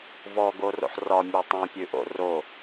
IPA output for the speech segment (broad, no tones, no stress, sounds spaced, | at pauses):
v ɔ ɡ o r o̰ ħ r ɒ mʲ ʉ tˤ õ pʲ ʉ ʔ o̰ r o